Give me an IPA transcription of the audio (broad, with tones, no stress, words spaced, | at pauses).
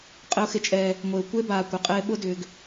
qʼɪ˦ʊ̯xɪ˦t͡ʃʼɛː˦ | ŋʷe˨ʊ̯ kʷe˦baː˨ kʷɪ˨qʼɪː˦ ɓʊ˦dʏː˨ɡ